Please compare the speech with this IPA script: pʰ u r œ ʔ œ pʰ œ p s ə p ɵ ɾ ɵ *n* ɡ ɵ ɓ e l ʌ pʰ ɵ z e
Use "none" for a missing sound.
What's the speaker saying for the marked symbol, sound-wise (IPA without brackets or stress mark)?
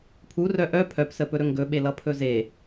ŋ